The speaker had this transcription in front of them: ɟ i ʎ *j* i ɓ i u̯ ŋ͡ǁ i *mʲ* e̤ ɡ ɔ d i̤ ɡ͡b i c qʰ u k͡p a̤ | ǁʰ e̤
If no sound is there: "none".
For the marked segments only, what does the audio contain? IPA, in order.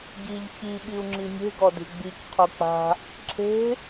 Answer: ç, mʲ

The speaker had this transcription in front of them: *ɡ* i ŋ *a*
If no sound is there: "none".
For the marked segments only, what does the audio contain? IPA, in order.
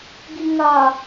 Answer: ɡ, a

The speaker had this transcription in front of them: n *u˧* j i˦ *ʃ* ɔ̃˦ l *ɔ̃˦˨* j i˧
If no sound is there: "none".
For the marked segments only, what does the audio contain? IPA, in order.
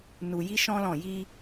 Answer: u˧, ʃ, ɔ̃˦˨

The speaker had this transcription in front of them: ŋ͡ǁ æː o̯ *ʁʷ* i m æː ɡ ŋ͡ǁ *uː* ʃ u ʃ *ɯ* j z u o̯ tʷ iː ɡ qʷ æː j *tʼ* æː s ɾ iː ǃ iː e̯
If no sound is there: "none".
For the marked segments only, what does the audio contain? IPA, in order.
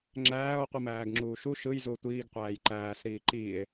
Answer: qʷ, uː, ɯ, ǃ

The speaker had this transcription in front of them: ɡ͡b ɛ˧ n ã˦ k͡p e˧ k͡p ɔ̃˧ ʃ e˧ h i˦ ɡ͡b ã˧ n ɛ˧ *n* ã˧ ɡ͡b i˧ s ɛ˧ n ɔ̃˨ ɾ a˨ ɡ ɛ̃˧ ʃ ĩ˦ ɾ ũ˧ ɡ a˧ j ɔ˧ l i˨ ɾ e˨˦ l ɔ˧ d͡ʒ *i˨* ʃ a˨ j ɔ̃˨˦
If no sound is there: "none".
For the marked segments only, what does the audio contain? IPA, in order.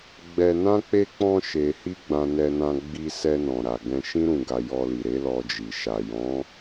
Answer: n, i˨

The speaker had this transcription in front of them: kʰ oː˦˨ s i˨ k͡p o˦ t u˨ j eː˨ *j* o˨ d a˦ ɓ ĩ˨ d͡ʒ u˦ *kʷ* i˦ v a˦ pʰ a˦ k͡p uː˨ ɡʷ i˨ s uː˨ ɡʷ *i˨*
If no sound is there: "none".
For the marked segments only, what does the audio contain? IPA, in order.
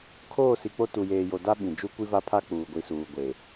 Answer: j, kʷ, e˨

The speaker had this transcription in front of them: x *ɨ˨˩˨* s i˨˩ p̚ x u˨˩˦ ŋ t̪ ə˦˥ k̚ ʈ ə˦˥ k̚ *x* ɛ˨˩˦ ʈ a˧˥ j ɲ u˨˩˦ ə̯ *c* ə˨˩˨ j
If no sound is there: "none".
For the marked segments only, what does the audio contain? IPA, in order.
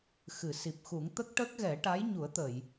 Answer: ɨ˨˩˨, ɣ, t̪

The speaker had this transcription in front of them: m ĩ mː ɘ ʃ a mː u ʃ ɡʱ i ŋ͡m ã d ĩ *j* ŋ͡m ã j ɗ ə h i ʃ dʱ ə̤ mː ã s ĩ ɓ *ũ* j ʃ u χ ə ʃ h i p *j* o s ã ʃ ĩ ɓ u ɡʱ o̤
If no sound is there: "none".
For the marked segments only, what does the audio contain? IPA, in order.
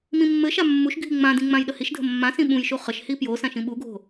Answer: none, ũ, j

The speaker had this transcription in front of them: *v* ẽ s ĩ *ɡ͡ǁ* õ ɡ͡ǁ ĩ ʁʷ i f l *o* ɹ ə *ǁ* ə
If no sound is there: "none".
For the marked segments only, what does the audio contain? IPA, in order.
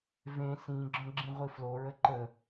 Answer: v, ɡ͡ǁ, o, ǃ

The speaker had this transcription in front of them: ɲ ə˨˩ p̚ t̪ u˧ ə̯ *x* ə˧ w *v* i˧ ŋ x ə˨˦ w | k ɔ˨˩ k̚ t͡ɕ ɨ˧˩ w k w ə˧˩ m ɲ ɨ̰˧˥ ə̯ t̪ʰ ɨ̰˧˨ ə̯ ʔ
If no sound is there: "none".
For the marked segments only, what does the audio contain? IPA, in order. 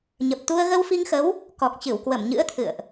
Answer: ɣ, f

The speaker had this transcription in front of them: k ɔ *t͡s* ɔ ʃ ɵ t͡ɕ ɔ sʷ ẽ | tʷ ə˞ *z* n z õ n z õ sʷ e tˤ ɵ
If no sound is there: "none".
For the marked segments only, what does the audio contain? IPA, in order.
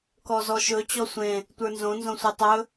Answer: z, none

